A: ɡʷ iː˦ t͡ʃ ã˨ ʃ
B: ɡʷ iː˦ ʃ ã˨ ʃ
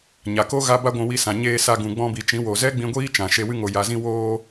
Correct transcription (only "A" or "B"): A